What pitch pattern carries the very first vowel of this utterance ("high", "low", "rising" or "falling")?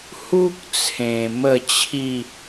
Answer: high